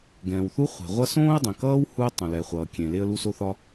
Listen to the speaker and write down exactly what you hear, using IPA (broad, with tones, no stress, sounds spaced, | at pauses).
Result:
ɡ ɛ̃ː˩ w θ u˥ χʷ e̤˩ ʁʷ ʌ˥ s õː˥ ə̯ dˤ ẽ˩ k ʌː˥ w h u˥ ə̯ tˤ ũ˩ l ɛ˩ χʷ ʌː˩ kʲ ẽ˩ l e˥ ə̯ l u˥ s o˥ θ ɒ˥